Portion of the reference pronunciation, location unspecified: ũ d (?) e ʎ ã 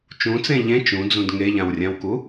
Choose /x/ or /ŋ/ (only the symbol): ŋ